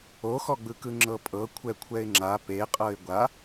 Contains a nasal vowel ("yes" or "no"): no